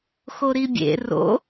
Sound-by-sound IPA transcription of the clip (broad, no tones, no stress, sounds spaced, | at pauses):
x o ɾ i bʲ ḛ r o̰